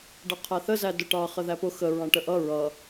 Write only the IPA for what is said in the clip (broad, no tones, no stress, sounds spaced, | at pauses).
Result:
ɖ ʌ qʰ æ θ ə z æ d ʊ ʈ ɑ χ ə ð æ p ʊ x ə ɹ ɑ̃ ʈ ə ʔ ʌ ɹ ʌ